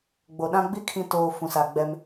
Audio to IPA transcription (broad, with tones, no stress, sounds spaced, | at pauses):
ɡ͡b o˨ ɗ ã˦ ɡ͡b i˦ kʰ ĩ˨ t oː˨ f ũ˨ s a˨ ɡ͡b ɛ˦ m